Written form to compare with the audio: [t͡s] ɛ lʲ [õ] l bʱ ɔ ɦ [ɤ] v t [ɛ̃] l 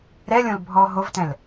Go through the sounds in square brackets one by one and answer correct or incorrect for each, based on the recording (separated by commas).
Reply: incorrect, correct, incorrect, correct